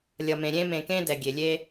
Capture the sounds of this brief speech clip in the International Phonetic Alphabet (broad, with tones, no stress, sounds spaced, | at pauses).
lʲ ʌ˨ m ẽ˨ ɾʲ ẽ˥ m ẽ˨ k ẽ˥ d ɛ˩ ɡʲ e˩ lʲ e˥